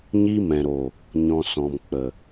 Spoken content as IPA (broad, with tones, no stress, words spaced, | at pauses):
ɲi˧mɛ̃˨ɾo˨ | ɲɔ̃˨sɔ̃˨mk͡pə˨